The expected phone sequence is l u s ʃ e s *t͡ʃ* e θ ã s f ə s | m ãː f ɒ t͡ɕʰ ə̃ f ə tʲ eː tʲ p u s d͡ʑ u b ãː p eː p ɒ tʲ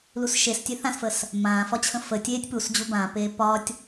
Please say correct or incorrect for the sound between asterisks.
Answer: incorrect